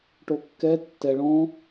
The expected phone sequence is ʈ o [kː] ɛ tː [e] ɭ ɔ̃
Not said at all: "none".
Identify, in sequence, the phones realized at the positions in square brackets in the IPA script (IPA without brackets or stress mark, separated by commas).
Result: kː, ɛ